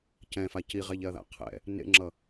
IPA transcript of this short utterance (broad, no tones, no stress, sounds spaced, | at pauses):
c ɛ̃ f a c i ʁ ɛ ʎ ɛ ɐ̯ ð a̰ qʰ ɛ̰ | n ḛ ŋ͡ǁ ʌ